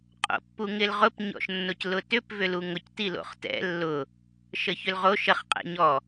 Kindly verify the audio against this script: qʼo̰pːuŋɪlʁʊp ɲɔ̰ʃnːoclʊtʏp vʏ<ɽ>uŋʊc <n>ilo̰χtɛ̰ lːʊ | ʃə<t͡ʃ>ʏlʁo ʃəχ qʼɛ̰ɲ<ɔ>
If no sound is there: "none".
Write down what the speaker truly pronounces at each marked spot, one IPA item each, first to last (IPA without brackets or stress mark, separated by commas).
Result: l, t, ç, ɔ